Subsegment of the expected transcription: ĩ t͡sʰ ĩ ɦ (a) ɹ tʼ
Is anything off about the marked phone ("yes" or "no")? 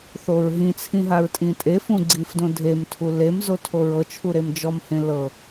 no